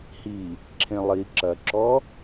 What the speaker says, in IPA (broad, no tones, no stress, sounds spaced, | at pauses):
h i | ǁʰ ẽ lˠ i ǁ ɐ ǁ ɔ